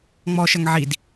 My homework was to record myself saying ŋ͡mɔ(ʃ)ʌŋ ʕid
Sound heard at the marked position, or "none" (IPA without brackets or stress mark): ʃ